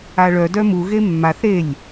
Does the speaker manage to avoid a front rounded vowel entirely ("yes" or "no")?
no